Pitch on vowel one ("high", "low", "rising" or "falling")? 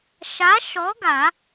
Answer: rising